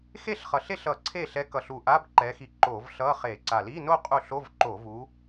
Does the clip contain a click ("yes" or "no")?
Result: yes